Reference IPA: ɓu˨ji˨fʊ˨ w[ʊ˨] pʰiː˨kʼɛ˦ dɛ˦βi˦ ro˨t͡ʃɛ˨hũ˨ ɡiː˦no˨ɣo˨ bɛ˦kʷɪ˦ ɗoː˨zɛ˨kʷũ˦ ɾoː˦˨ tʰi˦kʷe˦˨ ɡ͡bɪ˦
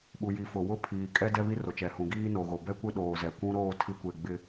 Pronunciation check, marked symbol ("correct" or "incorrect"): incorrect